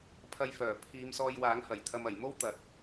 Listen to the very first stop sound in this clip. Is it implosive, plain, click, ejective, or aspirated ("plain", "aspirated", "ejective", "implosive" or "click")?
aspirated